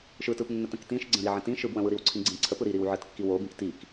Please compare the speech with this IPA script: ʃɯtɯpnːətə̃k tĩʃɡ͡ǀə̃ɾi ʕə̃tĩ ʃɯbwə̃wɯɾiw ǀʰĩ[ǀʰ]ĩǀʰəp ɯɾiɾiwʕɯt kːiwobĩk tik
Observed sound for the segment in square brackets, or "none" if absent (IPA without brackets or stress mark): ɡ͡ǀ